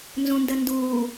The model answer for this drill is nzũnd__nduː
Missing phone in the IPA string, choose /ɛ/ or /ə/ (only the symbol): ə